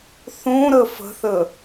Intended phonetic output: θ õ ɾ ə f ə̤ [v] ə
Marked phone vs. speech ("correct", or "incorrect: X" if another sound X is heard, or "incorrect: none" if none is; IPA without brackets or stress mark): incorrect: θ